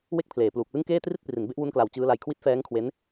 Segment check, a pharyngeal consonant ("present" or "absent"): absent